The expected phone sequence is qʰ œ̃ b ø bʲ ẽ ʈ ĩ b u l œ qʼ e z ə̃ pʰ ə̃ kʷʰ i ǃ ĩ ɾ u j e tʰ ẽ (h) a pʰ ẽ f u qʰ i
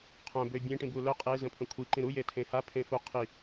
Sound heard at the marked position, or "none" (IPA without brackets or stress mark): h